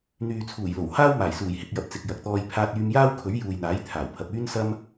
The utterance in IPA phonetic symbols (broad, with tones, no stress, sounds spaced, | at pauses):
n̪ yː˨ t͡sʰ uː˨˩ j l o˨˩ w h aː˥ w m aː˨˩ j s uː˨˩ j h ɪ˨ k̚ j ɐ˨ p̚ t͡s ɪ˨ k̚ j ɐ˨ k̚ t̪ ɔː˧ j pʰ aː˧ t̚ yː˧ m j aː˥ w kʰ ɵ˨˥ ɥ j uː˨ j n̪ aː˨˥ j t̪ʰ aː˨˩ w pʰ ɐ˨ p̚ yː˥ n s ɐ˥ m